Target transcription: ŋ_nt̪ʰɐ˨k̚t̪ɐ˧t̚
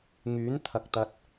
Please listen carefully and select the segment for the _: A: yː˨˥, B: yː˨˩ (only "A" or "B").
A